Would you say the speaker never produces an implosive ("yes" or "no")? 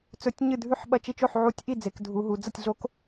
no